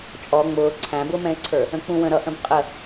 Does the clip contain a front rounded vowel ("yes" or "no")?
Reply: no